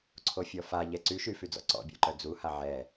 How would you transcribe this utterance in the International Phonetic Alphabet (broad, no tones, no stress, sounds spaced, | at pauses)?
ǀʰ o fʲ ɔ f a ʎ ɛ ǀ y ʃ y f y d͡z ɔ̰ ǀ ɔ̰ bʲ ɔ̰ ǃ œ d͡z u h a ʕ ɛ